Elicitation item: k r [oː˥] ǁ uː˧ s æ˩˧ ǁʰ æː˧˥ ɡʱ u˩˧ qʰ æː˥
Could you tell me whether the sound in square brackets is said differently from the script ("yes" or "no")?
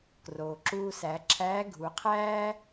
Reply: yes